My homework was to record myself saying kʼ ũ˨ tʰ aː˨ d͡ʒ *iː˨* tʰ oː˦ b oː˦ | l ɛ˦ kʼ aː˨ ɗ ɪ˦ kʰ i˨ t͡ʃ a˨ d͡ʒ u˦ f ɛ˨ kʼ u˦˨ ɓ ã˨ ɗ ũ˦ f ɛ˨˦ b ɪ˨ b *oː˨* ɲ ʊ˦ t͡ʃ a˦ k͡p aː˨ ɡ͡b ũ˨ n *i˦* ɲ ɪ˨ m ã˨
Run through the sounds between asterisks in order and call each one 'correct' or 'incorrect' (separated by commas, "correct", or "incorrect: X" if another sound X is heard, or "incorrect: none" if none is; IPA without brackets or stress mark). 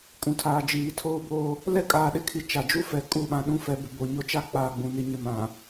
correct, incorrect: o˨, incorrect: i˨